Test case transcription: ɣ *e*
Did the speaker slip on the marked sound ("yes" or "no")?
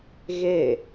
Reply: no